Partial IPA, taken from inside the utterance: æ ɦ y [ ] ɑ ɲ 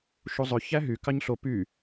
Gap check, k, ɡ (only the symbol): k